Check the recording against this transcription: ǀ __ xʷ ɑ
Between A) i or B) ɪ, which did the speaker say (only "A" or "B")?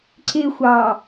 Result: B